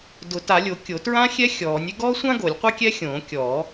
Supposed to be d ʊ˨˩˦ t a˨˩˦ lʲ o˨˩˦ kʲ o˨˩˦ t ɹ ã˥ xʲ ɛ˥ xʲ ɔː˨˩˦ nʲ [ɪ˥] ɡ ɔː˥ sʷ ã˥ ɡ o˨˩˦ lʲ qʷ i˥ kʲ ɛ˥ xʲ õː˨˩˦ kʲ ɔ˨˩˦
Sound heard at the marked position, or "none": ɪ˥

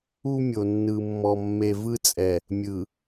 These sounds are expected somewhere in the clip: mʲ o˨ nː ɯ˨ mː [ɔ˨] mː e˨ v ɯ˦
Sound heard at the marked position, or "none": ɔ˨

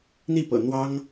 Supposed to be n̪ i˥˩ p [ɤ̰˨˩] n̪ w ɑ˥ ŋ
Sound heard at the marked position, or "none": ɤ̰˨˩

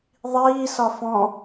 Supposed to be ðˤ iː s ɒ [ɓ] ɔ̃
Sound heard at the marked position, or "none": f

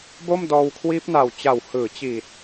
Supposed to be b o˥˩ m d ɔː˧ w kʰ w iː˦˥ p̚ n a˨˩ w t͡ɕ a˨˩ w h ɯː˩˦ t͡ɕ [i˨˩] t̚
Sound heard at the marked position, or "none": i˨˩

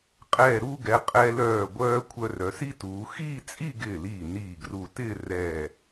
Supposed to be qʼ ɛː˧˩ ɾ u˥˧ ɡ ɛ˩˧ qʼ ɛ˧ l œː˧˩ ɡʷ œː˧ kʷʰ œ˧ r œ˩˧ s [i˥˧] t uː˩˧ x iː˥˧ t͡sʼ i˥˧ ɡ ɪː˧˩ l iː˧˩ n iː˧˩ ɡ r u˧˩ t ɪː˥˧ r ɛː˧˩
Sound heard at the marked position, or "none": i˥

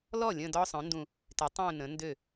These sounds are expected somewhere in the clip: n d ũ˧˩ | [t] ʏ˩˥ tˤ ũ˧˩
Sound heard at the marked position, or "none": t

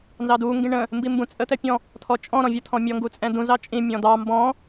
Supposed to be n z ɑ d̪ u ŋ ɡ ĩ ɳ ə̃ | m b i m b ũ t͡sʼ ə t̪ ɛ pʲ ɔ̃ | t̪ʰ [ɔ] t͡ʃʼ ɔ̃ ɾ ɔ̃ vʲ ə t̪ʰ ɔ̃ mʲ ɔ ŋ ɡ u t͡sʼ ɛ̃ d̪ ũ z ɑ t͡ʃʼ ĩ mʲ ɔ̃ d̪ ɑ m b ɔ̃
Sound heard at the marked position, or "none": ɔ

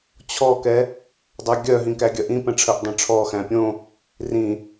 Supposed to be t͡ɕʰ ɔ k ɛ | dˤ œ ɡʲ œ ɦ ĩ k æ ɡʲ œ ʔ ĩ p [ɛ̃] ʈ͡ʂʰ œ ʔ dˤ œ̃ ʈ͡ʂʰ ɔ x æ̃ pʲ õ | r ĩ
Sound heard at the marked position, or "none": ɛ̃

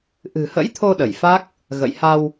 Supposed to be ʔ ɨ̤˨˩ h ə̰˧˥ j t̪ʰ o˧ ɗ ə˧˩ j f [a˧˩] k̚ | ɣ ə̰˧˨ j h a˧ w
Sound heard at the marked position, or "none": a˦˥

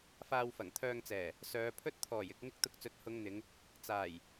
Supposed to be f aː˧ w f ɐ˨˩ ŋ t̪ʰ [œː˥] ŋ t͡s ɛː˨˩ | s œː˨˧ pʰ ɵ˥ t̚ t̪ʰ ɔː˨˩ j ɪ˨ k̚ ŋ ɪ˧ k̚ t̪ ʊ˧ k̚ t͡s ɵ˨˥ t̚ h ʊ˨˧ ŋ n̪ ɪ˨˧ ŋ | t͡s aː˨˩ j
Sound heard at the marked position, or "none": œː˧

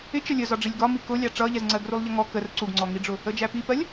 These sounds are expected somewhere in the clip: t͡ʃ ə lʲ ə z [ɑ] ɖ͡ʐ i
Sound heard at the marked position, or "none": ɒ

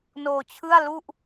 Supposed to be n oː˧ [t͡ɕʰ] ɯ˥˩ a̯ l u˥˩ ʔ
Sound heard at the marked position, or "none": t͡ɕʰ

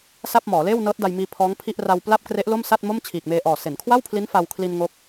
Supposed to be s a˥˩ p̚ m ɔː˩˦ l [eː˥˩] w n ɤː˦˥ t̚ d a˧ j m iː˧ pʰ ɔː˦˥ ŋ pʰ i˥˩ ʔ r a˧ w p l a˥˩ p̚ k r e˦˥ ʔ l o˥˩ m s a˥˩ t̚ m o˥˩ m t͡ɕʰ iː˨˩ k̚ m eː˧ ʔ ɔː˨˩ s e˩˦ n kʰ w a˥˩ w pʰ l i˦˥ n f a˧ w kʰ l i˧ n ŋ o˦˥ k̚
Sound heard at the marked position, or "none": eː˥˩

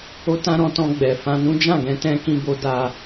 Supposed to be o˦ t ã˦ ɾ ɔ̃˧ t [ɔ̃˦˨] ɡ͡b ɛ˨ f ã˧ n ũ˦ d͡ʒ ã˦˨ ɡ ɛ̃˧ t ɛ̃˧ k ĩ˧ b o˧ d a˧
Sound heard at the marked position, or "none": ɔ̃˧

